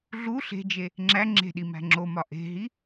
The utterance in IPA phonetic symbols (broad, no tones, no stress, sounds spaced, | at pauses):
ɮ u ɬ e̤ d͡ʒ e | ŋ͡ǁ æ ŋ͡ǁ e̤ ɗ i m æ̤ ŋ͡ǁ o m ɒ ʔ e̤ ɦ i